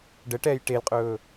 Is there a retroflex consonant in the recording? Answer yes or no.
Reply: yes